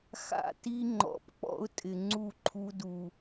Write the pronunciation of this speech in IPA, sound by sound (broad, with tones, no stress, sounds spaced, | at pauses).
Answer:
x a̰˦ t i˦ ŋ͡ǃ ɔ̰˨ p k͡p ɔ̰˦ ʊ̯ tʼ ɪ˨ ŋ͡ǀ u˦˨ ǃʰ u˦ d u˨